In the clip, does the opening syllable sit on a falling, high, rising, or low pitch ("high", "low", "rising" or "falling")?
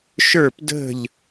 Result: falling